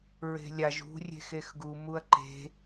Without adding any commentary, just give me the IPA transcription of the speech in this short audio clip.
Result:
ɹe̤lʲaʒ ṳ rʲe̤xexɡu muɐ̯ǃe̤

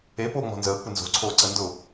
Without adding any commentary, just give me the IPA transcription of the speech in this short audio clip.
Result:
e poːŋ͡mɔ̤nzəː kʷɪnzo̤ ǀʰoːǀəndʊ

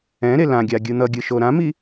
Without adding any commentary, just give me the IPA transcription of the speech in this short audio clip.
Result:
ɛ̃ɾe lãɡʲa ɡʲɯn̪ʌɡʲɯ ʃoɾãmi

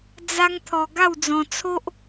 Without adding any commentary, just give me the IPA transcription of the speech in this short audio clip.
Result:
d͡za˦ŋt̪ʰɔ˧ ɡa˥˧wd͡zɔ̃˧t͡sʰo˦ʔ

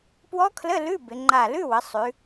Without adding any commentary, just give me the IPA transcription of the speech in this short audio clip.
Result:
pwɔ˦˥kʰlə˧˥˧ lʉ˧˥˧ bɪ˩˧ŋ͡ǃa˧˩ lʉ˧˥˧wə˩˧ sˤʉ˩˧

